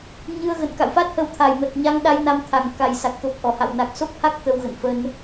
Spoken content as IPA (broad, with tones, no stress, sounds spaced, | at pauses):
ɲ ɨ˧ ə̯ ɣ ə̰˧˨ n k a̰˧˨ w f a˦˥ t̚ h ə˧ w t̪ʰ a˨˩ j m ə˨˩ t̚ ɲ a˧ ŋ ɗ a˧ j n a˧ m t̪ʰ a˨˩ ŋ k a˨˩ j s a˨˩ k̚ t̪ o˨˩ k̚ ʔ ɔ˧˩ h a̰˧˨ w n a˨˩ k̚ s o˦˥ k̚ h a˦˥ k̚ t̪ ə˧ w ɣ ə̰˧˨ n f ə˧ n